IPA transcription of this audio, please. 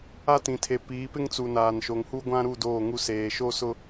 a˦ t ĩ˨ tʰ e˨ p iː˨˦ p ɪ˦ ŋ t͡s u˨ n aː˨ n ʃ o˨ ŋ h u˦ ɡʷ ã˦ ɾ u˦˨ d oː˦˨ ŋ u˦ s eː˨ ʃ o˦ s ʊ˦

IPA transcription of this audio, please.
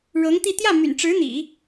ɻ ɤ˧˥ ŋ t̪ i˥˧ t̪ j ä˥˩ m y̰˨˩ n ʈ͡ʂ ɻ̩˧˥ n̪ ḭ˨˩˦

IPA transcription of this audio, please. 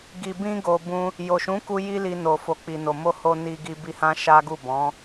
ɡ i˨ b ĩ˧ ɡ o˨ b ũ˧ | j o˨ ʃ ũ˨˦ k u˧ j i˦ l i˧ n o˨ f o˨ k͡p i˨ n o˨ m o˧ h o˧ n i˧ ɡ i˧ b i˧ h ã˦ ʃ a˦ ɡ u˦˨ b ɔ̃˨˦

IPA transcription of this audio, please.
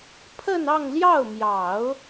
pʰ ə˥˧ n ɑ˥˧ ŋ l j ɑ˥˩ ʊ̯ m j ɑ˨˩˦ ʊ̯

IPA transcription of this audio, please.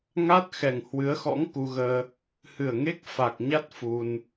ŋ a˦˥ t̚ x ɛ˨˩ ŋ h w ɨ˨˦ ə̯ x ɔ̰˧˥ ŋ k u˧ ɣ əː˧ | h ɨ˨˩ ə̯ ŋ e˦˥ k̚ f a˨˩ k̚ ɲ a˦˥ t̚ f u˧ n

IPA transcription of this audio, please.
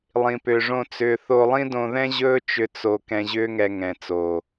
lˠ ĩ˨ p ʏː˨ ʐ õ˧ t͡s ʏː˧ θ o˧ lˠ ĩ˦ d õ˧ ð ɛ̃˦ ʑ ɵː˦ t͡ʃ ʏ˧ t͡s o˧ k ɛ̃˧ ʑ ʏː˦ ŋ ɛ˧ ŋ ɛ̃˨ t͡s oː˨

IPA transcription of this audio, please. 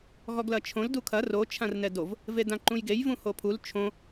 ɣ ɔ ɡ l ɐ t͡ʃʰ õ l d u kʰ ɐ r o t͡ʃʰ ã r n ɛ d o v | v e d ã ǃ ũ j ɡ e j v ũ h o pʰ u l t͡ʃʰ õ

